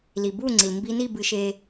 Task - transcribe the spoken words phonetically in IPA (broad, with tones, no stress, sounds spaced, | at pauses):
l i˨ b u˦˨ ŋ͡ǀ i˨ l m b i˧ n i˦˨ b ɨ˧ ʃ e˧